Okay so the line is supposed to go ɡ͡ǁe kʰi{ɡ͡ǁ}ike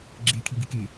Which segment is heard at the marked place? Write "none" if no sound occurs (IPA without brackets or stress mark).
ɡ